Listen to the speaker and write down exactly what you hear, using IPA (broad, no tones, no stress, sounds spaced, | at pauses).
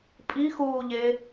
pʼ i x uː ʎ e